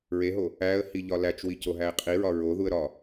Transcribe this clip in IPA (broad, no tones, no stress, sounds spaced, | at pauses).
ɹ e ɦ o | æ ə̯ h i ʎ ɒ l æ t͡ʃ w i c o ɦ æ ɪ̯ qʼ i ɹ ɒ ɹ o ð u ə̯ ɾ ɒ